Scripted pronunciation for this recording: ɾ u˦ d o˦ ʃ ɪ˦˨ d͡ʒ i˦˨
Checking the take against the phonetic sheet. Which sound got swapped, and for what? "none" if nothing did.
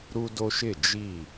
none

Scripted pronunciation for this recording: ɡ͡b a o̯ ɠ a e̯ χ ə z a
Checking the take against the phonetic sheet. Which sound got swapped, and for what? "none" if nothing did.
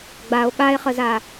none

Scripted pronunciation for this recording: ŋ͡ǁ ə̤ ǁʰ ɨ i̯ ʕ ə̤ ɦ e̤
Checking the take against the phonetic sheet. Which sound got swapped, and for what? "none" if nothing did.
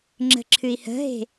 ʕ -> h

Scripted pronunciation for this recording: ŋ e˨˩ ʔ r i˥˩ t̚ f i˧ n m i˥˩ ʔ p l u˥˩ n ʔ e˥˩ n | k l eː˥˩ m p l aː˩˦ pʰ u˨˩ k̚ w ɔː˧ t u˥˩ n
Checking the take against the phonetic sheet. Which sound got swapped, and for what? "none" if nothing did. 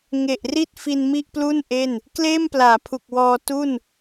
none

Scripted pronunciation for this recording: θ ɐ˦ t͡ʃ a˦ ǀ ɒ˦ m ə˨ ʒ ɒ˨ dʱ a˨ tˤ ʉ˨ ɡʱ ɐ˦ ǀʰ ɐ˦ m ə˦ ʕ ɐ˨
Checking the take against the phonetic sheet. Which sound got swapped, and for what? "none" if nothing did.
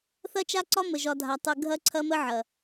none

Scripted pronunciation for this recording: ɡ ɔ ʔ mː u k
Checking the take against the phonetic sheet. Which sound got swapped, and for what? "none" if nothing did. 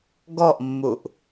k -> ʔ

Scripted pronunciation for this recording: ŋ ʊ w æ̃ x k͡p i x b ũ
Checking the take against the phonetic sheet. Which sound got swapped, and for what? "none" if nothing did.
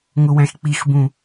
none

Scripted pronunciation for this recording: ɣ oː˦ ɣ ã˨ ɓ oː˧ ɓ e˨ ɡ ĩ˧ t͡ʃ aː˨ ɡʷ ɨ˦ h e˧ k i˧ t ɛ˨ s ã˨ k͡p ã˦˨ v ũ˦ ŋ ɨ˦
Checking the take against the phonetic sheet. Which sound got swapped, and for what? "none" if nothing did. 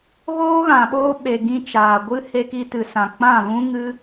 ɛ˨ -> ɨ˨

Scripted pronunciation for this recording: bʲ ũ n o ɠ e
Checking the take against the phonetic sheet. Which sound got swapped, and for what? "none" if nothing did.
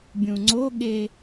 n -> ŋ͡ǀ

